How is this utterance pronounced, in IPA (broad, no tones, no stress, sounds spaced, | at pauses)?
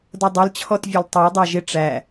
d ʌ dˤ ʌ l t͡ɕʰ ɔ t vʲ ɛ l tˤ ʌ ɪ̯ dˤ ɑ ʒ ɪ ʈ͡ʂ æ